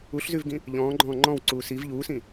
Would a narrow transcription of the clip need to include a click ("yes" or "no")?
yes